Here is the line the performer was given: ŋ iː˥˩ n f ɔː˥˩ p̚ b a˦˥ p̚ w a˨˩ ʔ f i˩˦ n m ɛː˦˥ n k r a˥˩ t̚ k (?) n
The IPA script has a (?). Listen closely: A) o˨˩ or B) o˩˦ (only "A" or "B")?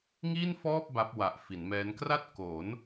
B